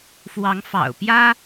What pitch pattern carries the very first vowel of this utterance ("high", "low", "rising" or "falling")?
rising